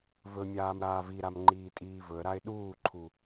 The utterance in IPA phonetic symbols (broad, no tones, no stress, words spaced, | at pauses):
vɵmʲaːm ɾaːviɾam ŋ͡ǃiːtʼiːvɵə̯ɾaɪ̯ ɗuːǃʰu